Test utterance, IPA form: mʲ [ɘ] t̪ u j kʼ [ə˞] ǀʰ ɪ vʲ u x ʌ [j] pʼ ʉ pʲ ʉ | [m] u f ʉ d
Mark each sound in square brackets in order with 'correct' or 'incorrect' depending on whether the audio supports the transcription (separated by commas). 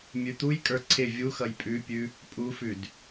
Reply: incorrect, correct, correct, incorrect